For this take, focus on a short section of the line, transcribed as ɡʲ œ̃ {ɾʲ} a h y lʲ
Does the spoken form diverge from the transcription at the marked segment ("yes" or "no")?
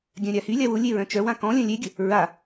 no